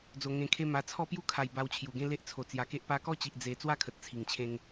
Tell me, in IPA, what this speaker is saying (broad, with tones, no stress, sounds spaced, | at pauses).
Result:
d͡z o˨˩ ŋ ẽ˨˩ kʰ e˧ m a˨˩ t͡sʰ ɔ˥˧ p j u˦ kʰ a˨˩ j b a˧ w t͡ɕʰ j u˨˩ ɡ ẽ˦ l e˦ ʔ t͡sʰ o˨˩ t͡s j a˨˩ k e˦ ʔ p a˧ k ɔ˥˧ t͡ɕ i˨ ʔ d͡z e˧ t͡s w a˦ kʰ ə˨ t̚ t͡sʰ i˨˩ ŋ t͡ɕʰ ẽ˦ ŋ